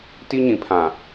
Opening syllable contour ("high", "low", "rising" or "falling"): high